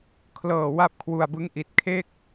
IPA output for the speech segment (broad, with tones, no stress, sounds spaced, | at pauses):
kʰ l ɤː˨˩ w a˥˩ p̚ kʰ w u˧ a̯ b ɯ˦˥ ŋ ʔ i˨˩ t̚ kʰ e˥˩ k̚